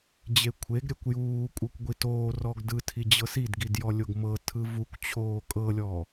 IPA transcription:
d͡ʑ e kʷʰ e ɡ ɾʲ ɛ kʷ j uː kʷʼ ɤ kʷ ɡʷ i t oː r ɔ ɡ d ɯ tʰ i d͡ʑ ɤ s i d ɡ i d j ɔ lʲ o ɡ m ɤ tʰ ɯ v u kʷ t͡ɕʰ oː kʼ ɤ lʲ ɔ

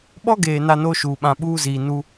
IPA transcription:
ɓ ɔ˦ ɡ eː˨ n a˦ n o˦ ʃ uː˨ ɓ ã˨ ɓ uː˦ z iː˨ n u˦

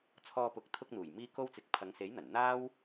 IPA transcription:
t͡sʰ ɔː˧ p ʊ˨˥ k̚ t̪ʰ ʊ˧ k̚ n̪ uː˨˩ j m iː˧ k o˧ w t͡s ɪ˨˥ k̚ pʰ ɐ˨˧ ŋ s e˨˥ j n̪ ɐ˨˩ n n̪ aː˥ w

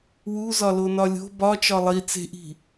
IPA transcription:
w u z ɒ l o n ɒ lʲ o̤ b ɒ t͡ʃ ɒ lˠ i t͡s e̤ ʔ i̤

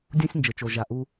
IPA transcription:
dʲ ũ˥ sʲ n d͡ʒ ɘ˩ t͡ʃ o˩ ʒ a˩ ʔ u˦

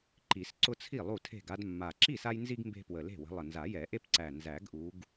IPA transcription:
ǃ i˨˩˦ s ǀ ʊ˦ t͡sʰ i˥˩ lˠ u˥˩ tʰ e̤˥˩ ɡ a˦ d mː a˨˩ ǁ i˥˩ s a˦ j n z i˦ ɡ m b e̤˦ p w ə˨˩ l e̤˥˩ w ə̤˨˦ lˠ ə˨˩ n z a˨˩˦ j ɛ˨˩˦ ʔ e˦ p ǀ æ˨˩ n z æ˨˩˦ ɡ ʔ u˨˦ ɡ

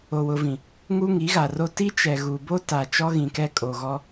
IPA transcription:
o˨ w ʊ˨ v ĩ˨ | ŋ u˦ ŋ i˨˦ ɣ a˨ r o˦ t i˦ t͡ʃ ɛ˨ ɣ u˨ b o˦ t a˨ t͡ʃ ɔ˦ ɣ ĩ˨ k ɛ˦ kʼ o˨ ɣ ɔ˦

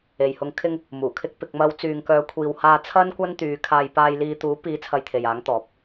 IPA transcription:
e˨ j h ʊ˧ ŋ kʰ ɪ˧ ŋ | m uː˨˩ kʰ ɪ˧ k̚ p ɪ˨ k̚ m ɐ˨˧ w t͡s yː˨ ŋ k œː˨˧ kʷʰ iː˨ w h aː˧ t͡sʰ ɐ˥ n kʷ ɐ˥ n t̪ yː˨˧ kʰ aː˧ j p aː˧ j l iː˧ t̪ uː˨˥ p iː˨˥ t͡sʰ ɐ˧ j t̪ʰ e˨ j aː˨˥ ŋ t̪ ɔː˨˥ p̚

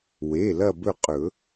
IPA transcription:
w e˩˧˩ l ɐ˦˨ b ɵ˦˨ qʼ ɵ˨˩˦

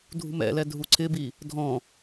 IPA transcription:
dʱ ṳ m ɛ̰ l ɛ dʱ u ǀʰ ɪ b i | dʱ ɔ̃

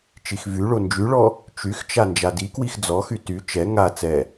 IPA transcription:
t͡ʃ i x v y ɭ o n d͡ʒ y ɭ ɔ | t͡ʃ y x t͡ʃ a n d͡ʒ a d i k w i x d͡z ɔ x y t y t͡ʃ ɛ ŋ a t͡s ɛ

